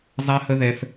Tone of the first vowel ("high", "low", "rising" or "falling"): high